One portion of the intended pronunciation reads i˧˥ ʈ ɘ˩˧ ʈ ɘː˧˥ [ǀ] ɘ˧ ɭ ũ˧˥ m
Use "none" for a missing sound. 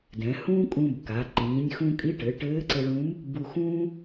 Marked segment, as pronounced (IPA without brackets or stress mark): ǀ